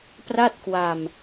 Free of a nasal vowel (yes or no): yes